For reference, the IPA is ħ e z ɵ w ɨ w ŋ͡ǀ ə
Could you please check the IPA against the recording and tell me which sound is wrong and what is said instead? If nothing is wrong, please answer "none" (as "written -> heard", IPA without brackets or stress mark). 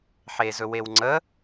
ɨ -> e